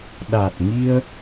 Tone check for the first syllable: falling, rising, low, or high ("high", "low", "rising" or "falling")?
low